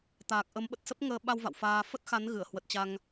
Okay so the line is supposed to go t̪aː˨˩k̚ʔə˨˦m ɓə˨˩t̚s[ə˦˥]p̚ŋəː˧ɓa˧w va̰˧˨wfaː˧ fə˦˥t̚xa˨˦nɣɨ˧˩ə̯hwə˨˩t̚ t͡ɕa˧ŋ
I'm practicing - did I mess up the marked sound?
no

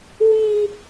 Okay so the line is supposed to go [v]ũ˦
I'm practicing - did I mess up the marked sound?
yes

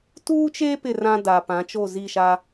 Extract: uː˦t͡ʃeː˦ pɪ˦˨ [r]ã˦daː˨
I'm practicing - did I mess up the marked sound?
no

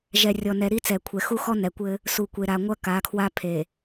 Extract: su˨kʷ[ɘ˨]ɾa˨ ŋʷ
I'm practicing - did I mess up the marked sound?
yes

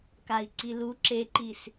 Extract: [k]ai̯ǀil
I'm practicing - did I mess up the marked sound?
no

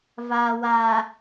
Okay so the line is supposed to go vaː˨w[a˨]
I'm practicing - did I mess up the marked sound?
no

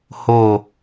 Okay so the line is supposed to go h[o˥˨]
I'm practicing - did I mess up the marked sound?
yes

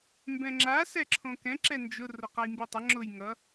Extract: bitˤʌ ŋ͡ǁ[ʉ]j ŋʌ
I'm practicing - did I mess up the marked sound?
yes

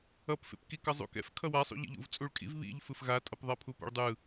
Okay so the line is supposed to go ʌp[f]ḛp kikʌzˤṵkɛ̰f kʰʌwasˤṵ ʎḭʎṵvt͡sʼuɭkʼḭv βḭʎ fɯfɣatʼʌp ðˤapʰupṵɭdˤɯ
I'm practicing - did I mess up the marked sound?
no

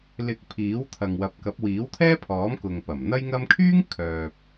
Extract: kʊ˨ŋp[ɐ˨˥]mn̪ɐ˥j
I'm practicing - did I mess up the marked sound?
yes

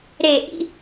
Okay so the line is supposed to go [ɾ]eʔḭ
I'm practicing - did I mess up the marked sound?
no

